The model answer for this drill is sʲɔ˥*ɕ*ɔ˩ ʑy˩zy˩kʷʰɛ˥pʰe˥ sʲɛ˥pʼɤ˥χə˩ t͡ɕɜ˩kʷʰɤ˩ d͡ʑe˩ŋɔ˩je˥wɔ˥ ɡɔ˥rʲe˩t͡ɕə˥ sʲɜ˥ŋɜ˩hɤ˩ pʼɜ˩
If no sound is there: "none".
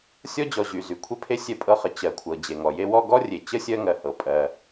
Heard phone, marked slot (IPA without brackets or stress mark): d͡ʑ